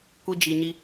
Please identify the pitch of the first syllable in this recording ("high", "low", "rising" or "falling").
high